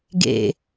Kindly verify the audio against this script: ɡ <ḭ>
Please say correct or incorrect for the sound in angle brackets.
incorrect: ḛ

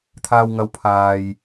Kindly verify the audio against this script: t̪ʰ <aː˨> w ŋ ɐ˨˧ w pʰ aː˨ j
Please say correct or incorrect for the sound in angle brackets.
correct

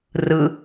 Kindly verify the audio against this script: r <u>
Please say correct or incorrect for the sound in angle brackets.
incorrect: ɯ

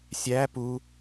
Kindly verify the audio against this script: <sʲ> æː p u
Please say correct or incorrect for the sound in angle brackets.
correct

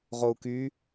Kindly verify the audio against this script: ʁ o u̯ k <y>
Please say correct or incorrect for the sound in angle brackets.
correct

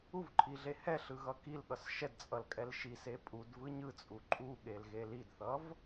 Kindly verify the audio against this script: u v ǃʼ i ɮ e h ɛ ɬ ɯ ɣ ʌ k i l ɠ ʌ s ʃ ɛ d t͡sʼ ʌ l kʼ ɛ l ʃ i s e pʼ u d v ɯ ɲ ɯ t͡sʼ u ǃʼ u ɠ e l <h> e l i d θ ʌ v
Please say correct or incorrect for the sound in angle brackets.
incorrect: ɣ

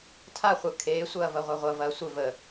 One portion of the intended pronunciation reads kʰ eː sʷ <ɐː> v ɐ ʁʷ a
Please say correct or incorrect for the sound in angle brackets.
correct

